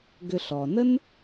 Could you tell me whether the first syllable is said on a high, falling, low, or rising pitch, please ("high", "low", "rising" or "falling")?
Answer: low